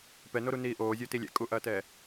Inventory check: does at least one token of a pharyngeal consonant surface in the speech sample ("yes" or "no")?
no